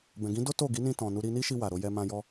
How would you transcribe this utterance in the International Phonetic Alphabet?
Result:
b ɛ̃˨ ɡ ĩ˨˦ d o˦ t o˦˨ ɡ i˨˦ n ĩ˧ t ɔ̃˨ n u˧ ɾ i˧ n i˦ ʃ i˧ w a˨ ɾ o˧ j ɛ˧ m ã˧ j ɔ˧

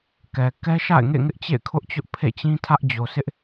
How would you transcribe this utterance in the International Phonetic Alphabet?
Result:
k ɛ˨ k ɛ˦ ʃ a̰˦˨ ɪ̯ ŋ ḛ˦˨ ŋ ɪ˦ ʔ t͡ɕ ḛ˦˨ ɪ̯ kʰ ʊ˦ ʔ t͡ɕ ʊ˦ ʔ pʰ ḛ˦˨ t͡ɕ ĩ˦ tʰ ä˦ ʔ d͡ʑ o˨ s ɪ˦ ʔ

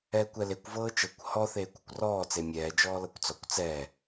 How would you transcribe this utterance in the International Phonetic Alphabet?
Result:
ɛː kʷ ɛ l e kʷ v ɤː t͡ʃ ɤ kʷ h ɔ θ eː kʷ ɔ kʷ r ɔː t͡s e mʲ ɛː d͡ʒ ɔː l ɤ kʷ t͡s ɔ kʷ t͡s ɛː

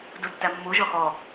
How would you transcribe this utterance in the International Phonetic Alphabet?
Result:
d u tː æ mː u ʒ ɔ x ɔ

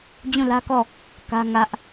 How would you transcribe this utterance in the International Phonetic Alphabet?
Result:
d͡ʑ ũ˦˨ l ä˦ k ɔ˦˨ | k ä˦ ŋ ä˦ ʔ

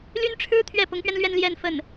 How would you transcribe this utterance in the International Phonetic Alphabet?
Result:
l y˥ n ʈ͡ʂʰ ɻ̩˥ t̪ʰ ɥ ɛ˥˩ p ʊ˧˥ ŋ p ɥ ɛ˧ n l ɥ ɛ˥˧ n l j ɛ˥˧ n f ə˥˩ n

